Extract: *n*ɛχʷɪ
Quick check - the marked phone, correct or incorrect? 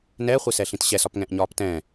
correct